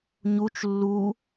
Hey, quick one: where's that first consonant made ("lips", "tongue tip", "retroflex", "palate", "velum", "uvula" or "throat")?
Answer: palate